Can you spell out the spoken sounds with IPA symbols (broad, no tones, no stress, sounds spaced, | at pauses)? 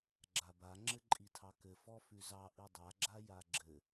ɡ͡ǁ a b a ŋ͡ǁ ɘ ǃʼ i tʰ ɑ k ɘ f ɔ f ʉ z ɑ ʔ i dˤ a ɡ͡ǁ a j a ɡ͡ǁ ɘ